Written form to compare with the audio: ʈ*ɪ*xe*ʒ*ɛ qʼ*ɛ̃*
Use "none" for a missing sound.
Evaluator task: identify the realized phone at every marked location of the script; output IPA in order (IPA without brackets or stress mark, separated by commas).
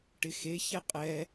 ɪ, ç, ɛ